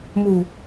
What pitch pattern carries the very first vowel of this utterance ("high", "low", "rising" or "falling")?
low